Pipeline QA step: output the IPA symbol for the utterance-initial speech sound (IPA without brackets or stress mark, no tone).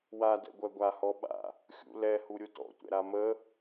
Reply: w